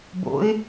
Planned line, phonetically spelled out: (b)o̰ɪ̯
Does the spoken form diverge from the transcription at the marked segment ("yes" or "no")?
no